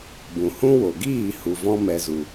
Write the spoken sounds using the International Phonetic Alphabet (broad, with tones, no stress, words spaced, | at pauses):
bũ˨hũ˦ wo˨ɡiː˦˨ hu˨vɔ̃˧mɛ˨zu˨